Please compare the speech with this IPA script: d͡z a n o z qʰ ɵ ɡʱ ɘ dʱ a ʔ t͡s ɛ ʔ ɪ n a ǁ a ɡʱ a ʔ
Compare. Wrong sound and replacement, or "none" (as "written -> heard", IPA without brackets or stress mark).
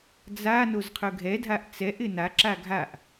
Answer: ɘ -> ɛ